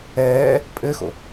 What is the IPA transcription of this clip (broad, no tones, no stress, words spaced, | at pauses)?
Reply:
ɛː | pʼɘxo̰